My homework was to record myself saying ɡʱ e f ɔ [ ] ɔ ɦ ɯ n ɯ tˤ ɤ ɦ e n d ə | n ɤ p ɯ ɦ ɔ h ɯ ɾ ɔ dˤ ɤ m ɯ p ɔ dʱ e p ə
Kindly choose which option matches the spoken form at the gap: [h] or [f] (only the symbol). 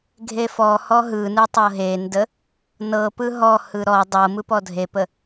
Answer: h